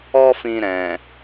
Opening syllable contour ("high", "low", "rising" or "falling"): high